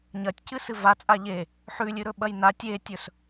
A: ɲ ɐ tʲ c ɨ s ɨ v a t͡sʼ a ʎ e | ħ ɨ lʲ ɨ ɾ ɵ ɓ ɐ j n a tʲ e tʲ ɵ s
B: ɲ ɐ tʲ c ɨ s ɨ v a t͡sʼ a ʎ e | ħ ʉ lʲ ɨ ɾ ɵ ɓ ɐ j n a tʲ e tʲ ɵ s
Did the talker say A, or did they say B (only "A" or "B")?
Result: B